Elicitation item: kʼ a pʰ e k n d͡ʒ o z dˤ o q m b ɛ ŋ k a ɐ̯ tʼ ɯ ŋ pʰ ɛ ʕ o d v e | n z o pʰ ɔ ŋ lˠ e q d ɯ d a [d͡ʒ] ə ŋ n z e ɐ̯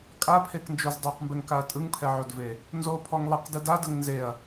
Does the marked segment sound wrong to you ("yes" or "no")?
yes